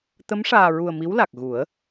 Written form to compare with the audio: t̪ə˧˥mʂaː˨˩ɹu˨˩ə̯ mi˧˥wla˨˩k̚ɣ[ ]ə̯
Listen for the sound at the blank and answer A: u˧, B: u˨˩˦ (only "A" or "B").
B